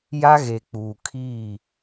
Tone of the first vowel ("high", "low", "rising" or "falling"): high